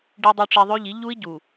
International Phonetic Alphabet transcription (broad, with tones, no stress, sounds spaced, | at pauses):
ɖ i˨ dˤ u˨ ʈ͡ʂ i˨ ðˤ ø˦ ʎ i˨˦ ʎ u˦ i̯ ɟ u˨